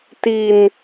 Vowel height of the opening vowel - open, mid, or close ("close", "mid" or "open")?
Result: close